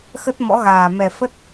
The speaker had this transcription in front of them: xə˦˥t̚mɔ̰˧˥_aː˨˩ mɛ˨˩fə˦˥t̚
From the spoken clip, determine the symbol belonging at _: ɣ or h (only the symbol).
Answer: ɣ